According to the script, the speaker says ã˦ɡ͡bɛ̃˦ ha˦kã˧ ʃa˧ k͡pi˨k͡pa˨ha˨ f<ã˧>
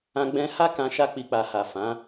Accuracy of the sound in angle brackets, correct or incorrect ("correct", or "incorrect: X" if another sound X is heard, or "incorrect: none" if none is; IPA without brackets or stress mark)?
incorrect: ã˨˦